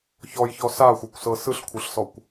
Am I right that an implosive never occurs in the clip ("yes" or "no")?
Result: yes